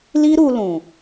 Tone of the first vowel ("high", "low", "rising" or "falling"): high